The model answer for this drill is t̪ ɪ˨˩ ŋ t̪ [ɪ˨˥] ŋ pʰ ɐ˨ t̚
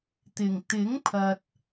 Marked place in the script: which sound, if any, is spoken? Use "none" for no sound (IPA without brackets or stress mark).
ɪ˨˥